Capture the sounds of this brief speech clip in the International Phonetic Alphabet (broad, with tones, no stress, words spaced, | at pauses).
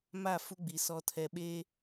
ma˦˨fu˦ɡ͡bi˨ sɔ˨ tʰɛ˨ ɓeː˦